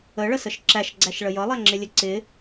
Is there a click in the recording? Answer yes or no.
yes